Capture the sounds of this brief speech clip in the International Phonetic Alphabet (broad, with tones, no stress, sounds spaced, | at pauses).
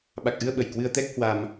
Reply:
ɓ a˨˩ k̚ ʔ ɨ˧ ə̯ ɓ ə˧˩ j k w ɨ˧ ə̯ t̪ ɛ˦˥ k̚ h w a˧ m